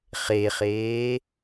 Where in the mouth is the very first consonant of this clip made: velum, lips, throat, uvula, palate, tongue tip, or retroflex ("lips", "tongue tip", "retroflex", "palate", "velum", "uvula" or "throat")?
uvula